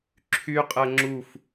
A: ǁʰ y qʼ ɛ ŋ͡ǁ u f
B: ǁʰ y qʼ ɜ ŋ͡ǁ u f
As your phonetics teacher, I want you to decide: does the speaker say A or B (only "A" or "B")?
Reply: B